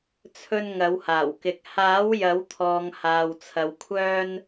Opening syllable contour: high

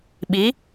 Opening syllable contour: rising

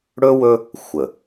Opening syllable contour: high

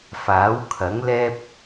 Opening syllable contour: rising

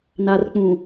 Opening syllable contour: low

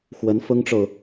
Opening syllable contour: rising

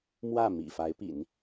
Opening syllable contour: falling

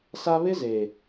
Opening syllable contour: high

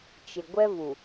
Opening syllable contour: low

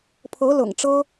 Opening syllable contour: rising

